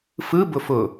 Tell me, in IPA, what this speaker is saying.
fɯ bʊfʊ

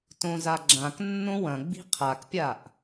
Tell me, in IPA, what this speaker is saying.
tõzaɡ͡ǁãk nːõwɐ̃ɡ͡bi̤ qʰakpʲaʔ

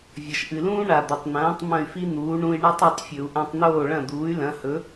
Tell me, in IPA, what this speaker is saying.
vʲɐ˩ʃʔɨ˩lũː˥ ɳa˩ d̪ɵ˩tˤn̪ɐ̃ː˩˥tˤ mɐ̃˥˩y̯fi˥n̪uː˩˥ ɳũ˧i̯ɳa˥tˤ e˧tˤfʲɵ˩u̯ ʔã˧tˤn̪oː˥˩ɭɐ̃˥˩d̪uː˩˥y̯ lɐ̃˩˥hɵ˩˥

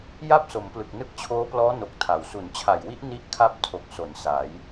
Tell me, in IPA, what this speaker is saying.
ja˥˩p̚so˩˦mplɯ˨˩k̚ nɯ˦˥k̚t͡ɕʰoː˦˥plɔː˦˥no˨˩k̚ tʰa˨˩w su˩˦nt͡ɕʰa˨˩jwi˦˥ʔ ni˥˩ʔkʰa˥˩p̚tʰo˨˩k̚ so˩˦nsa˩˦j

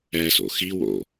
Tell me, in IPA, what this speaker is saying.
ɛso̰ xiwo̰

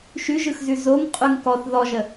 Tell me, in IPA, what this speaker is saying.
ʃʉʒɯxzʉ zoŋ qʼʉŋkɔθ ðɔʒə

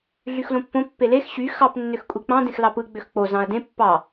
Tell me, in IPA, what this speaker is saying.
ɮyxlõpːõ pːelex ɕy xɑp nːøxkʷʼik͡pɑ̃ dẽxlɑpɯ ɡ͡bøxk͡po zɑ̃ɐ̯dẽ pːɑ

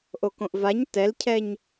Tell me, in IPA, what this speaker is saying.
ʔokõʔvaɲ tɛlcʰɛɲ

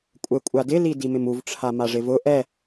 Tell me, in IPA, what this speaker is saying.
kʷʼɛkʷʼadɪli dimɪmuvʈ͡ʂʰa maʐɪvʊ ʔɛ

